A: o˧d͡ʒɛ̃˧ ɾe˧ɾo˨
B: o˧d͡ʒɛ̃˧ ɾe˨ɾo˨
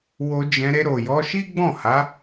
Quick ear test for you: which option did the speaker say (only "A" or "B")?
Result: A